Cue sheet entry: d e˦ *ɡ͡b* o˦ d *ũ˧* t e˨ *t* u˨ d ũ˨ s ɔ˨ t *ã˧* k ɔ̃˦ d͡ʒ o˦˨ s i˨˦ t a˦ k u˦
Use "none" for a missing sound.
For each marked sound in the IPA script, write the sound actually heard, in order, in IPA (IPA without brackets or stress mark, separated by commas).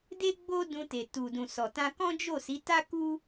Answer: ɡ͡b, ũ˧, t, ã˧